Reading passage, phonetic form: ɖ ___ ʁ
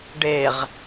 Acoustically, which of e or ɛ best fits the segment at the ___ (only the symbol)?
e